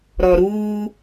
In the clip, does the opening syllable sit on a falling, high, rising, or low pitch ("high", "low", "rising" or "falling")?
low